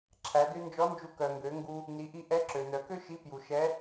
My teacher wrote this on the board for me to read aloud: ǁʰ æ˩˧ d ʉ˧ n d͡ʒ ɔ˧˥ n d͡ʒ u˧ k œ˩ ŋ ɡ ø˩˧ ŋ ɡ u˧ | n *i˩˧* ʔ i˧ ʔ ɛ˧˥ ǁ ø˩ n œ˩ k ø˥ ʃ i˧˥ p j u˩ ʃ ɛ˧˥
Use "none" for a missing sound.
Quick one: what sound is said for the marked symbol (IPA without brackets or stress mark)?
i˩˧